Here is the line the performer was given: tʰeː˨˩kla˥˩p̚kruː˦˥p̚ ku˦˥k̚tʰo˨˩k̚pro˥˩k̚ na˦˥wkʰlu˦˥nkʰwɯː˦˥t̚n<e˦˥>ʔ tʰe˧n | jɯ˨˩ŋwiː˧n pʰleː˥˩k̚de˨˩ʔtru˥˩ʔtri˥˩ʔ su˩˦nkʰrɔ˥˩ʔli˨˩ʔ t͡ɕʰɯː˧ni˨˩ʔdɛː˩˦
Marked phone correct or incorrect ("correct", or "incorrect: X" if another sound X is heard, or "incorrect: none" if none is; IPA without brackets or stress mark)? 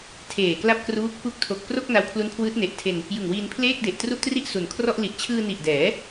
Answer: incorrect: e˨˩